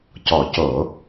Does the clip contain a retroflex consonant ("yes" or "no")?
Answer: no